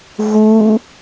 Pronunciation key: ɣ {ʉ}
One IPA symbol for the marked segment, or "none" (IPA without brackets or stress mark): u